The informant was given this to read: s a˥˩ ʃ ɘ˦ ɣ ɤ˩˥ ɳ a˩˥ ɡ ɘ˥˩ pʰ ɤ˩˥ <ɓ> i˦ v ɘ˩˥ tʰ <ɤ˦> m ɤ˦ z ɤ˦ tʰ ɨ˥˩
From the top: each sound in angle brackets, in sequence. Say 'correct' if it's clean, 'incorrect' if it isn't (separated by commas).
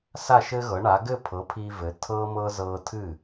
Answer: incorrect, correct